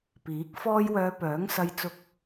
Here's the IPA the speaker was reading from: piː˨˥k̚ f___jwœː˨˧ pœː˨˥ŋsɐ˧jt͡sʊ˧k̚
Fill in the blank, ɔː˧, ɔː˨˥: ɔː˧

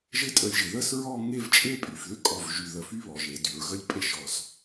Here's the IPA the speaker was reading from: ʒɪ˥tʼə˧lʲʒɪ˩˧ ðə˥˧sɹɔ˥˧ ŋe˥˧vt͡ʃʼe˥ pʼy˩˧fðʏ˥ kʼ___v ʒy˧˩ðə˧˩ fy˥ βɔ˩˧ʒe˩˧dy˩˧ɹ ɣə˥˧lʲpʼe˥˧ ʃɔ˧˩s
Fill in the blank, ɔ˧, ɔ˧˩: ɔ˧˩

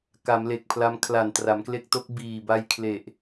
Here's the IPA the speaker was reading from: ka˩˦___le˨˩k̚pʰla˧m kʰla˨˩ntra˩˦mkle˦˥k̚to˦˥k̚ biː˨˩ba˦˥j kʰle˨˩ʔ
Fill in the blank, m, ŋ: m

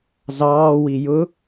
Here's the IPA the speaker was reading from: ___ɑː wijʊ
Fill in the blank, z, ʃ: z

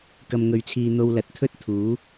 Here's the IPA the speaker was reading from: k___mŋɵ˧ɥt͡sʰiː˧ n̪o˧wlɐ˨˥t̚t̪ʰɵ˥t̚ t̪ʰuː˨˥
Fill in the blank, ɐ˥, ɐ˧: ɐ˧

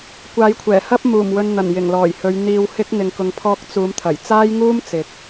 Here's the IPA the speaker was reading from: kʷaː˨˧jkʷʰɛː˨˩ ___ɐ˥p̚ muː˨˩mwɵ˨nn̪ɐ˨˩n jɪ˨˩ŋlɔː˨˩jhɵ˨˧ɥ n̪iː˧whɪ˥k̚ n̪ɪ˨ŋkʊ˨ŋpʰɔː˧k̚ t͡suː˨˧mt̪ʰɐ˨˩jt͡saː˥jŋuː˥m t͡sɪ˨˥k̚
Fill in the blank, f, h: h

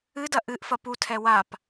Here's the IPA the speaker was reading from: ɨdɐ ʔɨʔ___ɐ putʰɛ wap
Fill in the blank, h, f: f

